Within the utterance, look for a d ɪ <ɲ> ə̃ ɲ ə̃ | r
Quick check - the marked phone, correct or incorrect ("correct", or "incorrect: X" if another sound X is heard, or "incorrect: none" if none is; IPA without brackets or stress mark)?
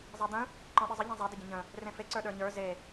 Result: incorrect: ɟ